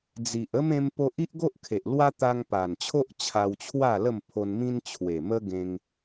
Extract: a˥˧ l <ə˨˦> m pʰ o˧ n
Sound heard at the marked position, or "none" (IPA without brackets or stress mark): ə˥˧